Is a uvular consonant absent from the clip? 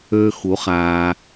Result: no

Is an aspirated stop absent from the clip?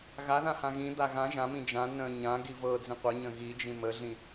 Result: yes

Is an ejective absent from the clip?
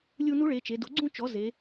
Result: yes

